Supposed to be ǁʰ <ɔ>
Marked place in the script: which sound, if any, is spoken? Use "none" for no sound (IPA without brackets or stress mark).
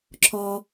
ɔ